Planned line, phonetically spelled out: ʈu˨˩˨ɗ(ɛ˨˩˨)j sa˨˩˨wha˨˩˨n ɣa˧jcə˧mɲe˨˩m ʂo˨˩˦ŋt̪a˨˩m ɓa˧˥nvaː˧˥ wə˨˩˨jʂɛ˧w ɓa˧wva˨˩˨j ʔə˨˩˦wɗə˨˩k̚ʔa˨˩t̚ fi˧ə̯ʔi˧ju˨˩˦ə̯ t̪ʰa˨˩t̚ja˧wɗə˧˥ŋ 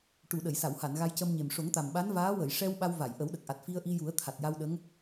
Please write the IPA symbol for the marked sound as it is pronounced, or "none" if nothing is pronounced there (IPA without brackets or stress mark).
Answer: ə˨˩˨